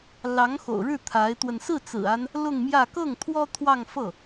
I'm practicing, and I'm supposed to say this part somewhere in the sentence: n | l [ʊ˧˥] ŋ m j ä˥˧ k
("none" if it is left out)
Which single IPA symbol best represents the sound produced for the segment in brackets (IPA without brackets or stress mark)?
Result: ʊ˥˧